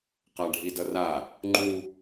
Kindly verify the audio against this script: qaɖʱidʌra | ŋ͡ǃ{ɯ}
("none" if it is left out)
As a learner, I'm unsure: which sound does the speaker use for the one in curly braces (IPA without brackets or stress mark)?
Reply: u